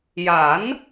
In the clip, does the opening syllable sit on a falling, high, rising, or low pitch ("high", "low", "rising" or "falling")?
rising